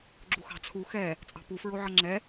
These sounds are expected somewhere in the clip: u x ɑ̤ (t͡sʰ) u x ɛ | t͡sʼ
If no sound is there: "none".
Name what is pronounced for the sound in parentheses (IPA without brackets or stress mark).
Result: t͡sʰ